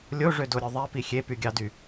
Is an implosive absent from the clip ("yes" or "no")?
yes